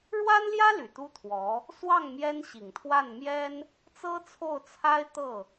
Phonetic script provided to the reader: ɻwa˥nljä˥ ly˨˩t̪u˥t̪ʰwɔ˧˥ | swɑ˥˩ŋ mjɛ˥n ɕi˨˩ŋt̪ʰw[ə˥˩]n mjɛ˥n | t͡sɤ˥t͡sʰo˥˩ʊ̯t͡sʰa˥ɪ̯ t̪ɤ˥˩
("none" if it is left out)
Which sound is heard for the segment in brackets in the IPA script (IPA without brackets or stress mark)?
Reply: a˥˩